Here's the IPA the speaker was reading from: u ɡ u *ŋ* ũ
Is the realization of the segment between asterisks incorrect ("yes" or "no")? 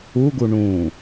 yes